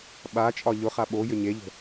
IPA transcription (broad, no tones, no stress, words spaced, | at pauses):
ɓat͡ʃʼɒ ʎʊχa ɓojʏ ɲeʎə̤